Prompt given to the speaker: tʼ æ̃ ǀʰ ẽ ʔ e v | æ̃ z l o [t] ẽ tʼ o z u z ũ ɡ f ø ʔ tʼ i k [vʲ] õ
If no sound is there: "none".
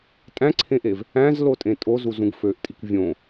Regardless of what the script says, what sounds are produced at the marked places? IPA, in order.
tʼ, vʲ

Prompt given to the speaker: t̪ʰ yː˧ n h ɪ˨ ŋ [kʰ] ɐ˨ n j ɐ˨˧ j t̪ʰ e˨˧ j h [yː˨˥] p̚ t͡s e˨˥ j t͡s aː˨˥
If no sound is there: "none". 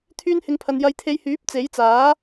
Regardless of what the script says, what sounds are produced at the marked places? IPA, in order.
pʰ, yː˨˥

